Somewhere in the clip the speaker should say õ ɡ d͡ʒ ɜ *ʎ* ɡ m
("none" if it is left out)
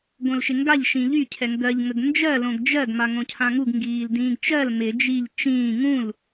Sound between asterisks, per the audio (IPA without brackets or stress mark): none